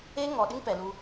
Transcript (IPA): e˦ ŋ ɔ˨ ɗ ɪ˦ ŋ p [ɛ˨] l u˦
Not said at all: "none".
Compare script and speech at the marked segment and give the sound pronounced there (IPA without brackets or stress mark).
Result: ɛ˨